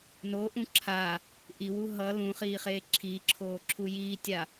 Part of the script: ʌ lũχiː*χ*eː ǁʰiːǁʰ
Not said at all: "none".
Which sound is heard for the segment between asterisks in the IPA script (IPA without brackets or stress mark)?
χ